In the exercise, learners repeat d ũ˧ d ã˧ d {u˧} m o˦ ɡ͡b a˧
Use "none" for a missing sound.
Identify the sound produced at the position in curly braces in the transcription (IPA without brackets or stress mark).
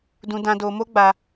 o˧